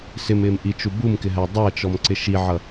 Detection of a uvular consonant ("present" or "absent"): absent